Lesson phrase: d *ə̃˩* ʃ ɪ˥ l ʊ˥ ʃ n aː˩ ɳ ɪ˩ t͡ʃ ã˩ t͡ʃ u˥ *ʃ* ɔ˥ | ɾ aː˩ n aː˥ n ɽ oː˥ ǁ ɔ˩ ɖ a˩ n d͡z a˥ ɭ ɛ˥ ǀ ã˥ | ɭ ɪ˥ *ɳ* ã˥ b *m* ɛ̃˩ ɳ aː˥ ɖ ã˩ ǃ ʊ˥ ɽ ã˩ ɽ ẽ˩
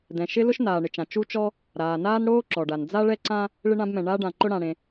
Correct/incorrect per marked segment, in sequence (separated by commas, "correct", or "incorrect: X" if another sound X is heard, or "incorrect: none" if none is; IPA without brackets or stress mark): incorrect: ɛ̃˩, incorrect: t͡ʃ, correct, correct